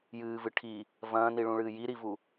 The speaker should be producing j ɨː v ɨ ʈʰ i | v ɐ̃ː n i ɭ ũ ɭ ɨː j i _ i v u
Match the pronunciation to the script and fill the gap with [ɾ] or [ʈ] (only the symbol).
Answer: ɾ